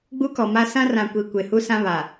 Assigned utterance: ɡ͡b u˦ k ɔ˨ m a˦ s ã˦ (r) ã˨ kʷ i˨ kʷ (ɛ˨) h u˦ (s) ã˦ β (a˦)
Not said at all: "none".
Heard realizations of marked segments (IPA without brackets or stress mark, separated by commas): r, e˨, s, a˨